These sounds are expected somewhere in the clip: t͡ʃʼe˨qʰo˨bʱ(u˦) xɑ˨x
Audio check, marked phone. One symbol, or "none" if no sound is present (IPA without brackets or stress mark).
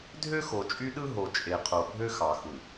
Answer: ø˦